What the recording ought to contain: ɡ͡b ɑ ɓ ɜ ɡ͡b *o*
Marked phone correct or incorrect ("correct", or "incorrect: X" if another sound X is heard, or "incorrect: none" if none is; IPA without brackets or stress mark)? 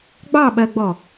incorrect: ɔ